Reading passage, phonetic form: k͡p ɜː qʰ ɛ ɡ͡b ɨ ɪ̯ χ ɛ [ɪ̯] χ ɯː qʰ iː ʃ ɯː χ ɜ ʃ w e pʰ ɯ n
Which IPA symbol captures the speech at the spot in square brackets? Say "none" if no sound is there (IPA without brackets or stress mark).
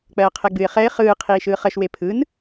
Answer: ɪ̯